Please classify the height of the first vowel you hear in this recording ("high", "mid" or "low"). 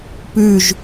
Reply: high